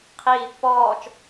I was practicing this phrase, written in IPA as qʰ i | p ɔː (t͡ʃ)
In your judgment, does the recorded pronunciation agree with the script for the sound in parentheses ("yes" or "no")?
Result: yes